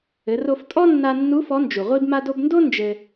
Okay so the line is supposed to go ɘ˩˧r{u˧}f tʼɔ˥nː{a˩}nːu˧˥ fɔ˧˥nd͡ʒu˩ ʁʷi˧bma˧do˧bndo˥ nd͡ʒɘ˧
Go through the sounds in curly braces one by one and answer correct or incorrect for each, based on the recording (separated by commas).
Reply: incorrect, incorrect